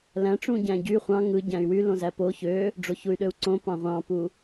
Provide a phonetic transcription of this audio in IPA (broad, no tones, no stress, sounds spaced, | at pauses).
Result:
l æ̃ ʈ͡ʂ ũ ɟ æ̃ ɟ y χʷ ɑ̃ ŋ ɯ ɟ æ̃ y̯ w y l õ z æ p o ç ø | ɖ͡ʐ o ç u y̯ ɗ ø u̯ ǀ õ p ɑ̃ ʁʷ ɑ̃ p u